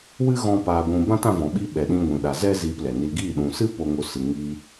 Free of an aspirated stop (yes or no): yes